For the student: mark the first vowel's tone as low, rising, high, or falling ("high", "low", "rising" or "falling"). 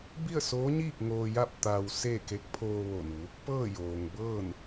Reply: falling